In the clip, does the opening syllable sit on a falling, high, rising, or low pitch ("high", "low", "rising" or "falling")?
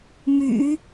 low